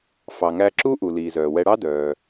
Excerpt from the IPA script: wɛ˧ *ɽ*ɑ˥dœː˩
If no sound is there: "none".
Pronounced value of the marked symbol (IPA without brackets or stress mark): ɽ